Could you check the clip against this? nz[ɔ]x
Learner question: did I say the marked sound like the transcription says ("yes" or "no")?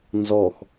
yes